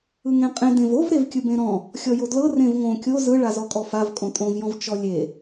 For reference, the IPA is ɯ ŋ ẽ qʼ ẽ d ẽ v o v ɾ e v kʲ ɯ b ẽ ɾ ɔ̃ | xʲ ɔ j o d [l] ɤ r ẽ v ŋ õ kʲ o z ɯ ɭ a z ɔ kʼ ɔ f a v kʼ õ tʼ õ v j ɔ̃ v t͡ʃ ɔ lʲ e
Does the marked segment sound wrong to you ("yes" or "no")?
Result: no